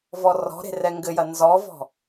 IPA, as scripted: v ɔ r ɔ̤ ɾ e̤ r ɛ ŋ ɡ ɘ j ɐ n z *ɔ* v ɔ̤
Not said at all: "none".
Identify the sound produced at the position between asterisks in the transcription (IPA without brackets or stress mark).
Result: ɔ